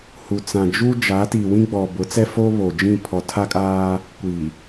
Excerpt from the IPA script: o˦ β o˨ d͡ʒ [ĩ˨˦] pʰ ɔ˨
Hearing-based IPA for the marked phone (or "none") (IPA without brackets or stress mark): ĩ˦˨